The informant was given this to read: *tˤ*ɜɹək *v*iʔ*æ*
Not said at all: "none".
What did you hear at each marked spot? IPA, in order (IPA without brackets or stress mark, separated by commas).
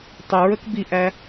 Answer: tˤ, b, æ